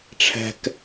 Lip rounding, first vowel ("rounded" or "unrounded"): unrounded